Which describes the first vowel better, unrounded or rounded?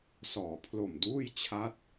rounded